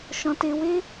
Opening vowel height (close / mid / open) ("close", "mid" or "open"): mid